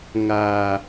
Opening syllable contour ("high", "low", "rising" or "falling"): low